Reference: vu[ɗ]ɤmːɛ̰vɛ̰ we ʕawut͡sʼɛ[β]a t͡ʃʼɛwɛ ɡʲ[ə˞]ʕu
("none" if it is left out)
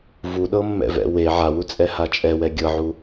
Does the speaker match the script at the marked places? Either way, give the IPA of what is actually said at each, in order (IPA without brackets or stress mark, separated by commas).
ɗ, h, ɤ